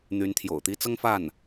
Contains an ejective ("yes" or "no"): no